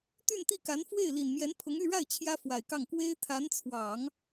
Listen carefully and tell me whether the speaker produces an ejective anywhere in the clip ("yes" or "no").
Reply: no